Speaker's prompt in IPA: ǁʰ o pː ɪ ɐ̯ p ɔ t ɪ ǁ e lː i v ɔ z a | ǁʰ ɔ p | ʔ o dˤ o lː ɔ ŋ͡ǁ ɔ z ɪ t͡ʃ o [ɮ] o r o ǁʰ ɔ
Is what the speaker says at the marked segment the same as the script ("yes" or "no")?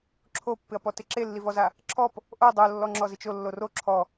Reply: no